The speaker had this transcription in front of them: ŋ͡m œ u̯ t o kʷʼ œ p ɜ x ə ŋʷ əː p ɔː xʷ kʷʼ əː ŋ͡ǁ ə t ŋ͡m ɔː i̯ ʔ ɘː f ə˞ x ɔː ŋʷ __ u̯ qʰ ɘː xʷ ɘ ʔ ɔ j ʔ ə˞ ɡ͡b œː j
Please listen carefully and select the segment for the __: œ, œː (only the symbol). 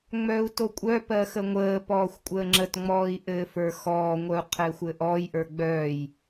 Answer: œ